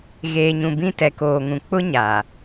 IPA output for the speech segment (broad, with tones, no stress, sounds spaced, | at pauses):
ɣ eː˨ ɲ ũ˨ b ĩ˦ t ɛ˨ k oː˨ ŋ ũ˨ k͡p ʊ˦ ɲ a˨